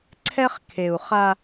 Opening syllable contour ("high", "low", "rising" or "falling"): high